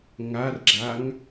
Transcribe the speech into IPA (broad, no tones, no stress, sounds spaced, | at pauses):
ŋ a r ɡ͡ǁ a ŋ